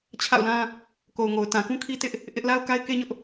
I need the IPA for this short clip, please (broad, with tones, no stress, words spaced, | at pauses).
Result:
t͡ɕʰa̰˦˨ʊ̯lã˦ | ko˨ʊ̯ŋo˨ʊ̯ tã˨kũ˦kʰi˦tɪ˦ʔ | ʔɪ˦ʔ la˦ʊ̯ka˦ɪ̯ke˦ɲʊ˦ʔ